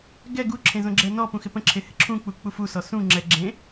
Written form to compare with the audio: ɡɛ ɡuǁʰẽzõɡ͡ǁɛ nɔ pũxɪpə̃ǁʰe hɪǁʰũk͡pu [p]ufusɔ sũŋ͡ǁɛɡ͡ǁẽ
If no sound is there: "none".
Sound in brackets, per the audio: k͡p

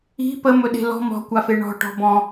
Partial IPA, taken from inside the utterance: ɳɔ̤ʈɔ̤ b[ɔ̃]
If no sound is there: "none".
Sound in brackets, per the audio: ɔ̃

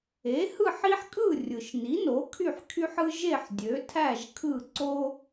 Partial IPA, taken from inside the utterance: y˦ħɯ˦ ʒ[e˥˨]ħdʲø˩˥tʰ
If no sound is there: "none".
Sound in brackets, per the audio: e˥˨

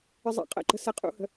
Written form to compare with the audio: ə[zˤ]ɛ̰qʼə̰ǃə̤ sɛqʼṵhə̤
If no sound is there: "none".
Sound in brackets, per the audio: zˤ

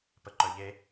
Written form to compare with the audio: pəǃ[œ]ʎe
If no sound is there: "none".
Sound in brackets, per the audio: œ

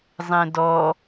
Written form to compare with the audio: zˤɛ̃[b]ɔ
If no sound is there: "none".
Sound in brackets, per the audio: d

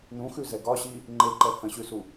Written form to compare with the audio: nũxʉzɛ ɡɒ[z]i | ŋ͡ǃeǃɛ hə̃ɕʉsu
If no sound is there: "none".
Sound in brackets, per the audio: ɕ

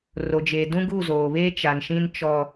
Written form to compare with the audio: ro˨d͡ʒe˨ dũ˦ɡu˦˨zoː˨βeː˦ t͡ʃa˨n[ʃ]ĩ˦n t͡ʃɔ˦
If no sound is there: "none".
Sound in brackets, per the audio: ʃ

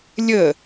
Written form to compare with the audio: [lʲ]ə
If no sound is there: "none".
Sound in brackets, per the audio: lʲ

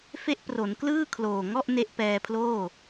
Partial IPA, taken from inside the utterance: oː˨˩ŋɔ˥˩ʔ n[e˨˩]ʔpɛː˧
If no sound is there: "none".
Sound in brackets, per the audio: e˦˥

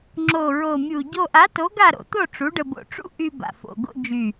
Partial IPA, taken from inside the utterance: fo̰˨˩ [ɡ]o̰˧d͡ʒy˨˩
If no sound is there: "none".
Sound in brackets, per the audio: ɡ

